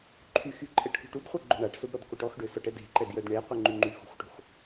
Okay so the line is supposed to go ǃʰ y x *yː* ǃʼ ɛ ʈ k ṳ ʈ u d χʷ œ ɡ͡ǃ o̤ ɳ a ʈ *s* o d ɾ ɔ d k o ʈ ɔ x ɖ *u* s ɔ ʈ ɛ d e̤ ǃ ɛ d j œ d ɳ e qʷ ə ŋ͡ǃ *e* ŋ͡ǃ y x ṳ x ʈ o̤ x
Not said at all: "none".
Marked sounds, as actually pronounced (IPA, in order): y, s, ø, y

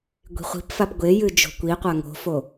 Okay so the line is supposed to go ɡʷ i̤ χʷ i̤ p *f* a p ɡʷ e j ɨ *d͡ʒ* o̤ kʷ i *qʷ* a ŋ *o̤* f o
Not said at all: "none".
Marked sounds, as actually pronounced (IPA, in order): f, d͡ʒ, qʷ, o̤

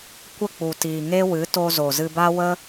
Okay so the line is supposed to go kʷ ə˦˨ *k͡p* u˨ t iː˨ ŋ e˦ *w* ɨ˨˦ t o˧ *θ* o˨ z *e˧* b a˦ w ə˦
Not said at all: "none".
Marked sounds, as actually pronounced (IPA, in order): k͡p, w, z, ɨ˧

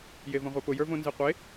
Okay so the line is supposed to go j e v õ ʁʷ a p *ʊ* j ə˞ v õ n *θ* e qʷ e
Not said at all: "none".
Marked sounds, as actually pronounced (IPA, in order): ʊ, z

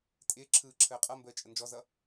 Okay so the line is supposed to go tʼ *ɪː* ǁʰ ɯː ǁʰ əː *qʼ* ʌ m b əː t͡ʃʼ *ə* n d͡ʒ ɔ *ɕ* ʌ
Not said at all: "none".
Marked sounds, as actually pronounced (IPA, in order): ɪː, qʼ, ə, z

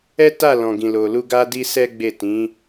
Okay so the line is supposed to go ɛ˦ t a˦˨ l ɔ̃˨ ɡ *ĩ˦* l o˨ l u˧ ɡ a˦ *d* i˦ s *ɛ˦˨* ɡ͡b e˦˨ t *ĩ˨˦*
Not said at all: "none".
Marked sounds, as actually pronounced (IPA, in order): ĩ˨, d, ɛ˦, ĩ˨˦

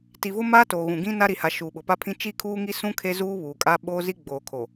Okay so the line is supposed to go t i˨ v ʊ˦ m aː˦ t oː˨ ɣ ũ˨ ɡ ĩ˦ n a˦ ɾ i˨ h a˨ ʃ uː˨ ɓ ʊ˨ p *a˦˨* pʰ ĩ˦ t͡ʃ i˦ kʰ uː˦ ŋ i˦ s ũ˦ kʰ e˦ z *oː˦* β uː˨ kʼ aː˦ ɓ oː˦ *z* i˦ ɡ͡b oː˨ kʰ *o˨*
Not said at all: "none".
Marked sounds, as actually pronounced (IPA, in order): a˦, uː˦, z, o˨

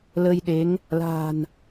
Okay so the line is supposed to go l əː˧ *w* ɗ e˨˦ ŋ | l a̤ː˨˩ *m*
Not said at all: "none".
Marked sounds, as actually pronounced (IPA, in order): j, n

